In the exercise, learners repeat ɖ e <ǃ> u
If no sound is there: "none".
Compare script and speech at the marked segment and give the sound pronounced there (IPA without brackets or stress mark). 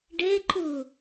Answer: ǃ